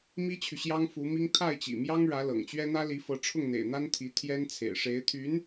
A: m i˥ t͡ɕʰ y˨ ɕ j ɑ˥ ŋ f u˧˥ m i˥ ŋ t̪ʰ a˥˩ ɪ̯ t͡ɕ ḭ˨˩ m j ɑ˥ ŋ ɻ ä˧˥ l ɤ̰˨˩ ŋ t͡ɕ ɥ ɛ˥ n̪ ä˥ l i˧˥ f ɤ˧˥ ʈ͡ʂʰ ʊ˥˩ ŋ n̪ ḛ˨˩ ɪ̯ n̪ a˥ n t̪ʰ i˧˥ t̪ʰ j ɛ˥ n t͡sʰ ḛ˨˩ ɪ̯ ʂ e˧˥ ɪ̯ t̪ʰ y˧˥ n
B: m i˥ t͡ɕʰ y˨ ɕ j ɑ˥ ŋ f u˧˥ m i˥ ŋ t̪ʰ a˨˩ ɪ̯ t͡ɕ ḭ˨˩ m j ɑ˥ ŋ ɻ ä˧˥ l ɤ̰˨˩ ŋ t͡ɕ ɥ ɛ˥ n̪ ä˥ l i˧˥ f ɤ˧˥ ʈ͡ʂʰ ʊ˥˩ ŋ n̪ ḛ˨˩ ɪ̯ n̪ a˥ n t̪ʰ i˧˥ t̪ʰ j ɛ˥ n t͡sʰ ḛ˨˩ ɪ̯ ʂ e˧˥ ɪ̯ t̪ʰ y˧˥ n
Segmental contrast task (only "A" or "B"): A